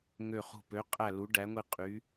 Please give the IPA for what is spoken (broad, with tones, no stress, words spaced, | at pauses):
ŋø˦˨χṳ˦˨ pø˨˥ qʼæ˦˨ lu˨˥ɖæ˨˥ŋʷi˦˨ qʼy˨˥